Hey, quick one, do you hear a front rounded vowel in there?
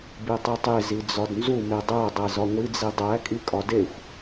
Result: no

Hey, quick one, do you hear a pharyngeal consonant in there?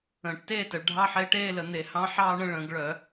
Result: yes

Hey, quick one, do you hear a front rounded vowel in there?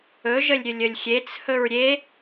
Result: no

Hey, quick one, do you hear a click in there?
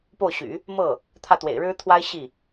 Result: no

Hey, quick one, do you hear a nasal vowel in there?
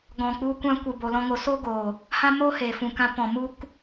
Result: yes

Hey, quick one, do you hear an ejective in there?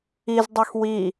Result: no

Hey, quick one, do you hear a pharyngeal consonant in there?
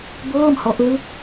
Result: no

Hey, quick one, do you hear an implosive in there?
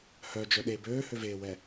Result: yes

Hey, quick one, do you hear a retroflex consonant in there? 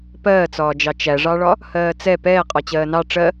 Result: yes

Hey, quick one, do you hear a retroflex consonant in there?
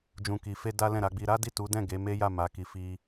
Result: no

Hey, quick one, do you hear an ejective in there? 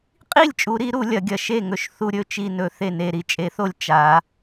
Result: yes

